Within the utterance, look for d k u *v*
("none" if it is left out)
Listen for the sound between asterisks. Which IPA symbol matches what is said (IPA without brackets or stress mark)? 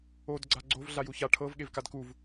v